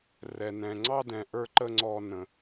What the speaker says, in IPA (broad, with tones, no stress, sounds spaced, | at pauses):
r ɛ˨ n ɛ̃˨ ŋ͡ǀ ɑ˦ d ɛ̃˨ ʔ ə˞˧ ǃ ə˦ ŋ͡ǀ ɔ˧ n ə̃˨